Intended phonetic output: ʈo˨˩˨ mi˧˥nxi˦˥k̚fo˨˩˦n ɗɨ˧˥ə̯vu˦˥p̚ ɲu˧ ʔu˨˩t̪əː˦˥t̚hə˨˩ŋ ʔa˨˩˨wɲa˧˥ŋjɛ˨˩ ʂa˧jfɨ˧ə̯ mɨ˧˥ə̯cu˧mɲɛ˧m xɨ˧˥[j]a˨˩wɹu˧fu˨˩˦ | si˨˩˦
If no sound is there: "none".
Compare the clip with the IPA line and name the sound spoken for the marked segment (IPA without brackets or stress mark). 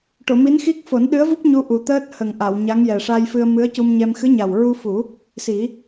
ɲ